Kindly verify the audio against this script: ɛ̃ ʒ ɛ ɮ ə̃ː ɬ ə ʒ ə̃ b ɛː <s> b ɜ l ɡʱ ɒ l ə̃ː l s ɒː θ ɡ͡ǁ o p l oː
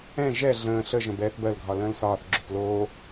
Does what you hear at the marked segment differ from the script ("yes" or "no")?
yes